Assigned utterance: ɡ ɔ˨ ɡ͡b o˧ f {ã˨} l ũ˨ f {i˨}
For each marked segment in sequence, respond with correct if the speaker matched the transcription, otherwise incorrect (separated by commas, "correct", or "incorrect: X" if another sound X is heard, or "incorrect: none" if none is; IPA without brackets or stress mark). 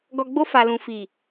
incorrect: a˨, correct